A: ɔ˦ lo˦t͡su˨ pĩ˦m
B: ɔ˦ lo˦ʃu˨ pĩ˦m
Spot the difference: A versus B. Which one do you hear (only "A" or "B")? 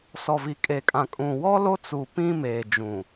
A